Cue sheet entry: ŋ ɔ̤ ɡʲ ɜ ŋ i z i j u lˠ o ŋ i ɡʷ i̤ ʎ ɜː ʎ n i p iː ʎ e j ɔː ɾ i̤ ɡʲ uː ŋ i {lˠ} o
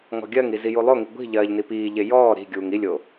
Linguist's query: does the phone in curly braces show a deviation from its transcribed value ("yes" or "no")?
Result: yes